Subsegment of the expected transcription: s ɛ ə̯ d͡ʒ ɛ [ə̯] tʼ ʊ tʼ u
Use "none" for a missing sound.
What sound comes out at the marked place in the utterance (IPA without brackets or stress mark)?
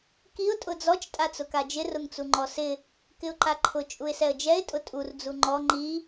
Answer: ɪ̯